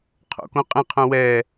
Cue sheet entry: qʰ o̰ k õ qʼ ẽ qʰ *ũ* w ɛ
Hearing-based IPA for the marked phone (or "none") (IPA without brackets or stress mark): ũ